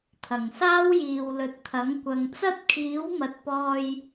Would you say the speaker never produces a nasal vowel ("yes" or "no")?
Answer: yes